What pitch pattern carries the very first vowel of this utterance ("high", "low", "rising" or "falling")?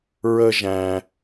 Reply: high